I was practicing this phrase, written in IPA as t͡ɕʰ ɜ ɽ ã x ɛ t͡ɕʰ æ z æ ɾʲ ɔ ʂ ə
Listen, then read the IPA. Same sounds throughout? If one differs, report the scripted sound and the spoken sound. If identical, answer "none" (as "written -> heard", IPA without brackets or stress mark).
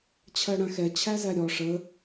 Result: none